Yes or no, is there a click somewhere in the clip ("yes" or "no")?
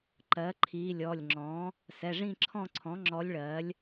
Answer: yes